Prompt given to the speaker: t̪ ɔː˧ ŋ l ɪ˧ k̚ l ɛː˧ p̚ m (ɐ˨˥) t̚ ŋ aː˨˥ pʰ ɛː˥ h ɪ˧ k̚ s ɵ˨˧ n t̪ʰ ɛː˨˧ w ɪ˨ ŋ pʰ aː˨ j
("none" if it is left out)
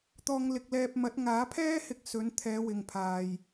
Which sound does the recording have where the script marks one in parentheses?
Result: ɐ˨˥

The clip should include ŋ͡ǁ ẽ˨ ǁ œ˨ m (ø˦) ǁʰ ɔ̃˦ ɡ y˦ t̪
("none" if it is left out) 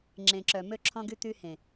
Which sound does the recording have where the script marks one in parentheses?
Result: ø˦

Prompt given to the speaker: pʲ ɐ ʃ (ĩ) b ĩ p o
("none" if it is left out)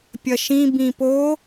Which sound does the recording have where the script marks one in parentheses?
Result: ĩ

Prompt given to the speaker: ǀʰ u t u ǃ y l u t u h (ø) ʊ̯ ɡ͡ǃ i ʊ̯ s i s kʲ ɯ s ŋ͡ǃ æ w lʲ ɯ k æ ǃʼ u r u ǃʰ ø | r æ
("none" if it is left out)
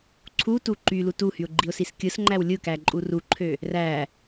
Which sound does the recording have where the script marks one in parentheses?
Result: y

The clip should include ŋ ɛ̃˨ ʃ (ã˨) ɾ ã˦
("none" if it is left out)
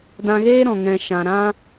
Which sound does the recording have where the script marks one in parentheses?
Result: ã˨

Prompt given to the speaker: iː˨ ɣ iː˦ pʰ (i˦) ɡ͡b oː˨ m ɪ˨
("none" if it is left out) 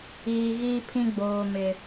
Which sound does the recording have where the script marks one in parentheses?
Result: ĩ˦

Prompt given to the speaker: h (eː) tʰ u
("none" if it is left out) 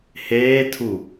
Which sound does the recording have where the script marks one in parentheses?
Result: eː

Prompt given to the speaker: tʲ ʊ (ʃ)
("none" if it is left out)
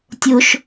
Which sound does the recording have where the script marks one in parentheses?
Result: ʃ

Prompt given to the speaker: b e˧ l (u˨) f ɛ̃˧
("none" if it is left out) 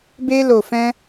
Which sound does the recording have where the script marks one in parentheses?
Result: o˨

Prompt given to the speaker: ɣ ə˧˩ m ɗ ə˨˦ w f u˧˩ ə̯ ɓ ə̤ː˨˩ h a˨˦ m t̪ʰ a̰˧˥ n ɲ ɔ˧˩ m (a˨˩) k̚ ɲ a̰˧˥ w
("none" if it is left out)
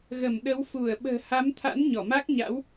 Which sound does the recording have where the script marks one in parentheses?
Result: a˦˥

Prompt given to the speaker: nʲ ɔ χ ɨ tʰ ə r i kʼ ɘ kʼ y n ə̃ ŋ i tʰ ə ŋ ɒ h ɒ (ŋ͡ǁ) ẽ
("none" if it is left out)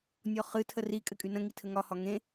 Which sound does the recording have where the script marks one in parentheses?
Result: ŋ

